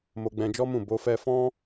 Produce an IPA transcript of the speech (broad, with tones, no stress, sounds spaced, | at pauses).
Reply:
m o˧ ɡ͡b ɛ̃˧ d͡ʒ ɔ˦ m ũ˦˨ b o˧ f ɛ˧ f ɔ̃˦